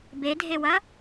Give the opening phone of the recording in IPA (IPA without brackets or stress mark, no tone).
b